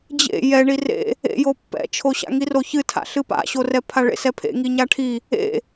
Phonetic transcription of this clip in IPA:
d͡ʑ ḛ j ɛ ɳ i r ḛ | ḛ j o pː ɛ̰ t͡ʃʰ o ɕ a̰ ŋ i r o ç ɨ tʰ a̰ ɬ ɨ p a̰ ɕ o r ɛ pʰ a ɭ ḛ s ɛ pʰ ḛ ŋ i ɲ a ʈʰ i | ḛ

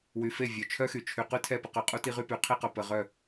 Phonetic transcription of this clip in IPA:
w y˨ f e˦˨ vʲ œ˨ t͡ʃʰ œ˦ x y˨ t͡ʃʰ y˨ q y˦ tʰ ɛ˦˨ p ə˦ q ø˨ qʼ u˦ t i˦ ʁ y˦ p y˨˦ qʰ i˦ q œ˨ p ə˨ ʁ œ˦˨

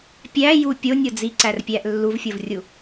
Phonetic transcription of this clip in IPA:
pʲ æ j u pʲ o nʲ o d͡z i ǀ æ r pʲ æ ʔ lː u v fʲ o v rʲ u

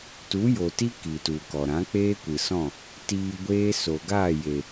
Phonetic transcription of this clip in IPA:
t u˨˦ j o˨ t i˦ k i˨ t u˨ k ɔ˨ ɾ ã˨˦ k͡p eː˦ kʷ ɨ˨ s ɔ̃˦˨ | t iː˧ ɡʷ eː˦ s o˨ ɡ aː˦˨ j e˨

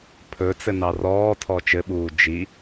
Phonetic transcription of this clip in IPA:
pʰ ɵ t͡s ɘ n ɑ r ɔː tʰ ɔ t͡ʃ ɘ ɓ uː d͡ʒ i

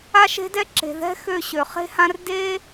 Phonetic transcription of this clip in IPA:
a˦ ʃ e̤˦ d ɛ˦ ǁ e̤˨ ð ɛ̤˦ x ø˧ ɕ ø˨ χ e̤˦ h ã˦ r d e˦

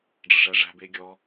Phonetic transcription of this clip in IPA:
ɖ͡ʐ ə ʂ æ ʐ æ̤ b e ɡʲ ɔ

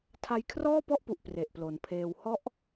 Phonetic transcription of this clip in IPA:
tʰ a˧ j kʰ r ɔː˥˩ p ɔ˥˩ ʔ p u˨˩ ʔ p r e˨˩ ʔ p l o˩˦ n pʰ eː˧ w h ɔ˦˥ ʔ

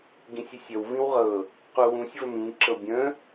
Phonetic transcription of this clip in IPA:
ɡ ĩ sʲ i sʲ ə w v ĩ w ʁ ɤ | q u w ũ sʲ v ə m ĩ ǁ ɤ bʲ ə̃

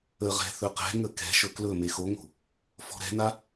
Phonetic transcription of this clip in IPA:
ə ʁ ɛ̤ θ ɵ q ɛ̤ ŋ ə k ɛ̤ ʃ ɵ k l ɵ m e x o ŋ o̤ | f ɔ̤ ɾ ɛ̤ n a

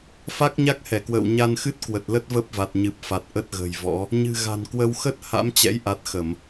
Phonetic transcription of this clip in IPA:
f a˦˥ k̚ ɲ a˦˥ k̚ h ɛ˧˩ k w ə̰ː˧˨ w ɲ a˧ n x ɨ˦˥ t̚ k w ə˨˩ t̚ l ə˦˥ t̚ v ə˦˥ p̚ v a˨˩ t̚ ɲ ɨ˨˩ p̚ f a˨˩ t̚ ʔ ə˦˥ t̚ ɣ ə̤ː˨˩ j v ɔ̰˧˥ | ɲ ɨ̤˨˩ ɣ a̤˨˩ n k w ə˧ w x ə˦˥ t̚ h a̰˧˥ m t͡ɕ ɛ̰˧˥ j ʔ a˨˩ t̚ x ə˧˩˨ m

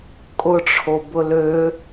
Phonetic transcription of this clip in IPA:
kʼ ʊ ʈ͡ʂʰ o b ʊ l ø

